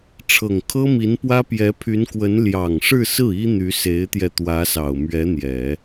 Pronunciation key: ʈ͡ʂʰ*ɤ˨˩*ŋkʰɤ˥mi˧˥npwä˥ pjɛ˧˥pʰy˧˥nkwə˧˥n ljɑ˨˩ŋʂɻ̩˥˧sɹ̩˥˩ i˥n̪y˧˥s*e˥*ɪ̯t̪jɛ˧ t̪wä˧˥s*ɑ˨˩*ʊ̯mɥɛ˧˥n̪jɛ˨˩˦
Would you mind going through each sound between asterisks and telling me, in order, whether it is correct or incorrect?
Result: correct, incorrect, correct

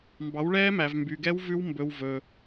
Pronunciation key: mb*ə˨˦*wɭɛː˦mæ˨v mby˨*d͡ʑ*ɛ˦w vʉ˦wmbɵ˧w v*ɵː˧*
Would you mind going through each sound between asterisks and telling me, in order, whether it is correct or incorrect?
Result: incorrect, incorrect, correct

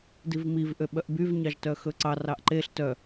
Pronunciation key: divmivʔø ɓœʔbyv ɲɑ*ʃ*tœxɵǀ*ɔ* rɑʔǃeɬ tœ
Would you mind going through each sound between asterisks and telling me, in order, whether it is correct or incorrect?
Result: incorrect, incorrect

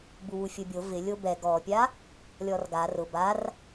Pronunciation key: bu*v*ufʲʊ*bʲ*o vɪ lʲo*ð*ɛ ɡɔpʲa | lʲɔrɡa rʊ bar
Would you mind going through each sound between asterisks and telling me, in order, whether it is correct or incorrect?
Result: incorrect, correct, incorrect

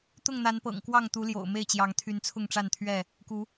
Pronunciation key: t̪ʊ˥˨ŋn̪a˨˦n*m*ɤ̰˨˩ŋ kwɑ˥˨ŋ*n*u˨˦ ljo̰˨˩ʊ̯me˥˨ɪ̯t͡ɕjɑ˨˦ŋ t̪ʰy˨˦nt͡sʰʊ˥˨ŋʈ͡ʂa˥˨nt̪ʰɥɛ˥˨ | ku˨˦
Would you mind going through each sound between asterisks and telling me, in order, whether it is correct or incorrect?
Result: incorrect, incorrect

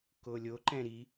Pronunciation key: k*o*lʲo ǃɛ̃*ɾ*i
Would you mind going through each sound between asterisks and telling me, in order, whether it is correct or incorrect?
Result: correct, correct

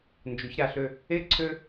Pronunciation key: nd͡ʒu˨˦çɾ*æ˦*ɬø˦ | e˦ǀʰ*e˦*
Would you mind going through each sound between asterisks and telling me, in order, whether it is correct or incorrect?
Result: incorrect, incorrect

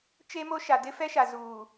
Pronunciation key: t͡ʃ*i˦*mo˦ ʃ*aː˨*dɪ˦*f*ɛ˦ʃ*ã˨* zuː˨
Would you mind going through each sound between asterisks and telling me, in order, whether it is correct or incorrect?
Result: incorrect, incorrect, correct, incorrect

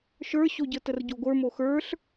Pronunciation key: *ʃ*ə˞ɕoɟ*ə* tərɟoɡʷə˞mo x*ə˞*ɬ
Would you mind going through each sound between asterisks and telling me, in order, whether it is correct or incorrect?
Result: correct, correct, correct

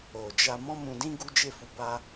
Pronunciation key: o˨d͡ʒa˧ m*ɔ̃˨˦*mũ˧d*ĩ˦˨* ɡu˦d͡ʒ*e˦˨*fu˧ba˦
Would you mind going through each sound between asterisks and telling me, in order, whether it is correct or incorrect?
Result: incorrect, incorrect, correct

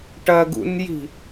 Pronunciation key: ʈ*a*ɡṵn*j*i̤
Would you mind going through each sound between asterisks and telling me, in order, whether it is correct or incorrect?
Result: incorrect, correct

